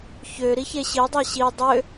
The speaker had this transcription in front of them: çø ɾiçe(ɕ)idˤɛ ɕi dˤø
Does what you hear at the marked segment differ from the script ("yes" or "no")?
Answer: no